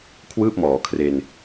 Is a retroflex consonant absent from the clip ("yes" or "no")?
yes